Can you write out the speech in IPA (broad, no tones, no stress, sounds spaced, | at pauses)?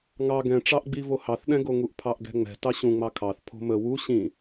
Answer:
ŋ ɑ ɡ ɛ̃ ʈ͡ʂ ɑ ʔ ɡ͡b i v o h ɑ θ ɗ ɛ̃ ɡ o ŋ u ʔ pʰ ɑ ʔ ɡ ɛ̤ ŋ͡m ɛ̤ t ɑ ɕ ũ ŋ͡m ɑ kʰ ɑ θ pʰ o̤ m ə w u ɕ ĩ